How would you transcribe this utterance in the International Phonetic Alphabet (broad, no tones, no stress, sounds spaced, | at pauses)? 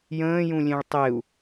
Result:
j ə̃ː j ũ lʲ ẽ ɭ tˤ e u̯